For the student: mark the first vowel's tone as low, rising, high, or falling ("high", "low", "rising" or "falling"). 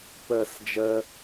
low